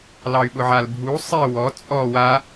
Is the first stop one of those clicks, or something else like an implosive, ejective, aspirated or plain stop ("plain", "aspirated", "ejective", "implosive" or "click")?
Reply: implosive